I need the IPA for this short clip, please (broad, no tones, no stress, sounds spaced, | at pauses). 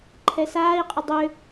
ǃʰ ɛ s aː i̯ qʼ ə dˤ ʏ